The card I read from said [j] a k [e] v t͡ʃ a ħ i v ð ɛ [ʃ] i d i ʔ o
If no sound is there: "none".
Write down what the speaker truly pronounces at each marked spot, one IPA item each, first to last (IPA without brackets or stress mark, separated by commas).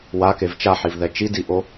w, e, t͡ʃ